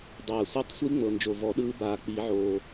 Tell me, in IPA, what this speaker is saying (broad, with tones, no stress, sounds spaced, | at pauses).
dˤ aː˨˩ sʷ ɛ˦˥ tˤ sʷ i˦˥ ŋ͡m ɤ˨˩ n d͡ʒ o˨˩ v ɔ˨˩˦ ɗ ɯː˦˥ b aː˨˩ k͡p i˨˩˦ ʕ oː˨˩